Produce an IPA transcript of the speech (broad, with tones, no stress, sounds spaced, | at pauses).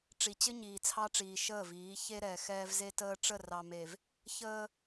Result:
ʈ͡ʂ i˨ t͡ɕ ɘ˦ ɲ iː˨ t͡sʰ ɑ˦ ʈ͡ʂ iː˨ ʃ əː˦˨ v iː˨˦ ç e˦ ɾ ɛː˨ x ɛː˦ v z e˦ t əː˦ ʈ͡ʂ ə˦˨ r ɑ˨ m e˨ v | ç əː˦